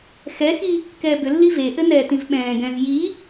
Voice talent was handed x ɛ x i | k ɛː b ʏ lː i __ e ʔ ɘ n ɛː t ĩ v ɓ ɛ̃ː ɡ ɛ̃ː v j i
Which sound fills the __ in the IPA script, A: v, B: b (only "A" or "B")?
A